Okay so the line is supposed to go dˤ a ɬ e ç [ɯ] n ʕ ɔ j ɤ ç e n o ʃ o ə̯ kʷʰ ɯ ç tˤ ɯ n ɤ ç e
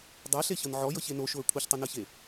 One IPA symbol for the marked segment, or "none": ɤ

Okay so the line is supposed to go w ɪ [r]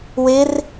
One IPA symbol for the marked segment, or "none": r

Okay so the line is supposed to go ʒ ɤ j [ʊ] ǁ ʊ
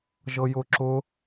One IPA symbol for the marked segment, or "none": ʊ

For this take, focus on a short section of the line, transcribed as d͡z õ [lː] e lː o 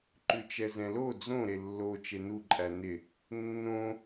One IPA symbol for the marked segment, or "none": ɾ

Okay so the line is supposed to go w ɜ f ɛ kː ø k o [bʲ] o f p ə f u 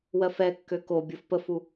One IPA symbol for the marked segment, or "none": bʲ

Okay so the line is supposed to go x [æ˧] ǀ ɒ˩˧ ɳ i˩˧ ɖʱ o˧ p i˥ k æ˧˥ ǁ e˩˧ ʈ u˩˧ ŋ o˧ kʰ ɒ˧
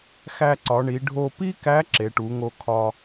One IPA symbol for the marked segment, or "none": æ˧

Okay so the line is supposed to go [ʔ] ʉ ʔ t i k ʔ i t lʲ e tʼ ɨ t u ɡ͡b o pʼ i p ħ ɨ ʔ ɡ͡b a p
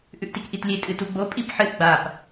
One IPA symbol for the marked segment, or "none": ʔ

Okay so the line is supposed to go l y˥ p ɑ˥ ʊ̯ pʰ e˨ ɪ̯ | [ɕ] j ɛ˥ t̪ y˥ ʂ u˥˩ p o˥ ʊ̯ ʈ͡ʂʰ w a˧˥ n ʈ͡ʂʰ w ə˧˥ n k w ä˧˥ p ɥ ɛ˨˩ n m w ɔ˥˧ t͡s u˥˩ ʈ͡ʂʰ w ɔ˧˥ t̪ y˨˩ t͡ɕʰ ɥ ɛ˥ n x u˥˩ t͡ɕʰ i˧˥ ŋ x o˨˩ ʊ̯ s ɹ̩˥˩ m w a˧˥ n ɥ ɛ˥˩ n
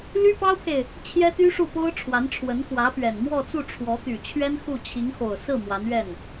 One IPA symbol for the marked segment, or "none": t͡ɕʰ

